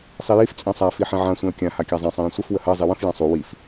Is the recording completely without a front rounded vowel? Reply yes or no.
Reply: yes